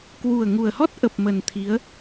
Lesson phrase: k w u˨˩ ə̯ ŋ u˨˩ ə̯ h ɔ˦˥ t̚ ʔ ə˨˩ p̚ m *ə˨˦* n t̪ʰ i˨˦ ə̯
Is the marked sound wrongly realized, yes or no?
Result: yes